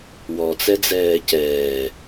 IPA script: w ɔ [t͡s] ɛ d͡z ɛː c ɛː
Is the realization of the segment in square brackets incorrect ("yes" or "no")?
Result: no